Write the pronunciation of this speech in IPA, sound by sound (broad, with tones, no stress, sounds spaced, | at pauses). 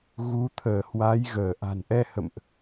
ɣ u˨˦ t̪ʰ əː˧˩ h w a˨˦ j ɣ əː˧˩ ʔ a̤˨˩ n ʔ ɛ˧ h ə̰˧˨ m ʔ